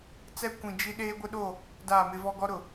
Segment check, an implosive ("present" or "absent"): present